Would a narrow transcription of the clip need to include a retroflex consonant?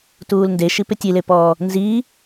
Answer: no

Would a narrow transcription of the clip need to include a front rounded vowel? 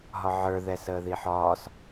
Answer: no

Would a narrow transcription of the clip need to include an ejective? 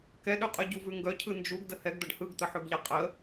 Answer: yes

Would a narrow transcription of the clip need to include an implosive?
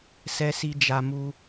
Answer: no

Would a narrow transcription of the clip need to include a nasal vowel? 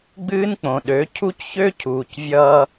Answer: yes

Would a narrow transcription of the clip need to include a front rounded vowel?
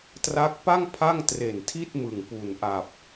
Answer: no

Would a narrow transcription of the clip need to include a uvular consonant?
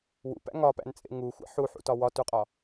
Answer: yes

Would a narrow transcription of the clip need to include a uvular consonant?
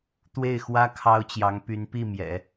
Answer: no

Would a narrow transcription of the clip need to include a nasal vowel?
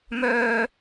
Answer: no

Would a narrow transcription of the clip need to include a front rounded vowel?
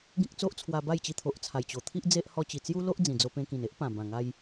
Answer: no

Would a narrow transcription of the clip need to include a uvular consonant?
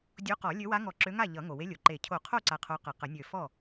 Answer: yes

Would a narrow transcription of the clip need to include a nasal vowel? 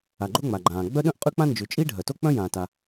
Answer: yes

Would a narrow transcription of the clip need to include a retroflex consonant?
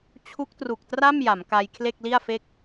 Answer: no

